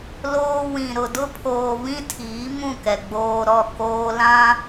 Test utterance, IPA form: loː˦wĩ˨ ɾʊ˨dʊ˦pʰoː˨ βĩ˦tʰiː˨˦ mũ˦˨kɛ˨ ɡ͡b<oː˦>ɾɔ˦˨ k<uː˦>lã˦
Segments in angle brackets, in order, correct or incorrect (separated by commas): correct, incorrect